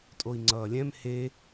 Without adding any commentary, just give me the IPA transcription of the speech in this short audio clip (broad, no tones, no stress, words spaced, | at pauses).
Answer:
tʼoi̯ŋ͡ǀʌːlʲɛ̃m he